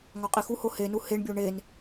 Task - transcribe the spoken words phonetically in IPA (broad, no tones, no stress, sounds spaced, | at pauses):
ŋ ɒ qʼ i x u h o h e n u h e ɳ bʲ o ɳ e n